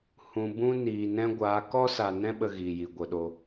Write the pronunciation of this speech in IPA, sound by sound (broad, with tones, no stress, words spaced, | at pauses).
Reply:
hũ˨bũ˦niː˨ nɛ̃˦ ɡʷaː˨˦ kɔ˦sa˨nɛ̃˦ ɓə˦ɣiː˨ji˨ ɡʷə˨ɗo˨